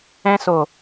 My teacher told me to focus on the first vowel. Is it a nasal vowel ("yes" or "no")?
yes